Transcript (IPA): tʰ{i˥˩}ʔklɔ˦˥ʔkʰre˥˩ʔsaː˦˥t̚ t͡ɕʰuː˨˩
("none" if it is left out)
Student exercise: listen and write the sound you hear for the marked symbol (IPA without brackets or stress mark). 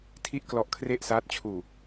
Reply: i˥˩